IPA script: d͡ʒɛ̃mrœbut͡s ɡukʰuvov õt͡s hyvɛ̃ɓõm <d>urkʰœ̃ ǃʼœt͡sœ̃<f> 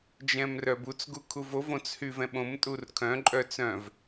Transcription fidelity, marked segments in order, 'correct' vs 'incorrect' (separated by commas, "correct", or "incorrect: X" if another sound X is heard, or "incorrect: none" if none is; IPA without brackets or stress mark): incorrect: tʼ, incorrect: v